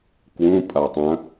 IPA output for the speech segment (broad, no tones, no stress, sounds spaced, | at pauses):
k w ũ pʼ a tˤ ɐ̃